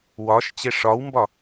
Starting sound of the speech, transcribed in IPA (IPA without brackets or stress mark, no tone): w